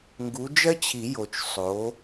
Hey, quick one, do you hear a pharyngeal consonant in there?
no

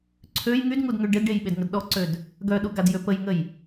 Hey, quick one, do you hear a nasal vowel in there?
no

